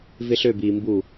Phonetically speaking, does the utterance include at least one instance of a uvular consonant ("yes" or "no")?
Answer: no